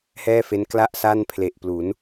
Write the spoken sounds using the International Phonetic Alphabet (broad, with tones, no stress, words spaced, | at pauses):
hɛː˥˩fe˦˥nkla˥˩ʔ sa˥˩npʰle˨˩ʔplu˩˦n